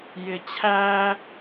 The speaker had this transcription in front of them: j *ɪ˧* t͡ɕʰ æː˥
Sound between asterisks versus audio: correct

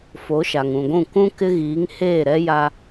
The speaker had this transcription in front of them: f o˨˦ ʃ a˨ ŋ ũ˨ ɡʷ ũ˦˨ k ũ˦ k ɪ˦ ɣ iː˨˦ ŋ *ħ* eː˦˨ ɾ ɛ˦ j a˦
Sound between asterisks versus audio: incorrect: h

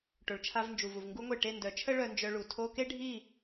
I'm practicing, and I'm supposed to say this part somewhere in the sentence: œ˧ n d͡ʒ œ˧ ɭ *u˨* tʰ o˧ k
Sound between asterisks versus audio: correct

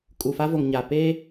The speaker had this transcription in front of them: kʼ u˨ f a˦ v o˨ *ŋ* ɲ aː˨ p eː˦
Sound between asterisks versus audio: correct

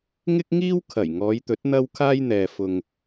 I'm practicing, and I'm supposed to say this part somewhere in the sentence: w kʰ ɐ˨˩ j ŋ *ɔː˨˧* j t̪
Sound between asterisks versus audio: correct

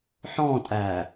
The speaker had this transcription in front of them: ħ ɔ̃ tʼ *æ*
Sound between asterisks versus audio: correct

